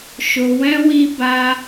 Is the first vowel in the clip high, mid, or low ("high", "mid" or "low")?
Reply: mid